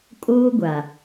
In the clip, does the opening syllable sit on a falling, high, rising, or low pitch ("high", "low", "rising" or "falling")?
high